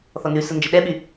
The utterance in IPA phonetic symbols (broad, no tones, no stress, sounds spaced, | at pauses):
θ ɔ n ʉ s ə n d͡ʒ ə ɗ ɛ ɓ y